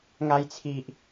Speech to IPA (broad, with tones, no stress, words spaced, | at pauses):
ŋa˧jt͡sʰi˨ʔ